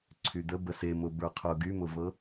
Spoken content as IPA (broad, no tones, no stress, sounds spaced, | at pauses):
ǀʰ y d̪ ə b ə s e m ʊ b ə˞ qʰ ʊ ɡ y m ʊ v ɤ